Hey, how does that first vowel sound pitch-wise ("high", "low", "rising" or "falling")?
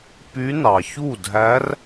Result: rising